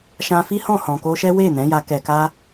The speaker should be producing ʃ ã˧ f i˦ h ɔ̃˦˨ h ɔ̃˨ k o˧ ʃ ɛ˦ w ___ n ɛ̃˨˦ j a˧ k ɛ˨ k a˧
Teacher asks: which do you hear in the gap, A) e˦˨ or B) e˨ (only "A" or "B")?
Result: A